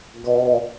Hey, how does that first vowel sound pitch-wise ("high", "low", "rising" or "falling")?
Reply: high